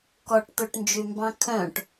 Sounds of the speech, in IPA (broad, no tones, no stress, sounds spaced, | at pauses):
k ɔ ʈ t̪ ɵ ʈ n d͡ʒ y m b ɑ̃ kʰ œ̃ ʈ